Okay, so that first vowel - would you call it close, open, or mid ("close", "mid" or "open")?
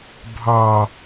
open